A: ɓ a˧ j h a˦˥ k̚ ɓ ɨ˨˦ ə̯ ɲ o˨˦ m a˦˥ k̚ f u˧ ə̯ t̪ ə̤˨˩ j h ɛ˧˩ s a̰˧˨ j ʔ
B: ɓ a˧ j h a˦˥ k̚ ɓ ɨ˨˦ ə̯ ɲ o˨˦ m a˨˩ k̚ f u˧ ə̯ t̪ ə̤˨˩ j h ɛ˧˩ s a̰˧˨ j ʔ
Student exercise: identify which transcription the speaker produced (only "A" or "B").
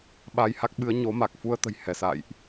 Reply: B